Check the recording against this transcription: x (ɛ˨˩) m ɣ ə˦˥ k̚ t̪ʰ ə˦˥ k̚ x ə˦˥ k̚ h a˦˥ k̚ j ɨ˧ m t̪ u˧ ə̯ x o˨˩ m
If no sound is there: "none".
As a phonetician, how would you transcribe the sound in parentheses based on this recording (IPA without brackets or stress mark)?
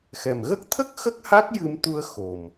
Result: ɛ˨˩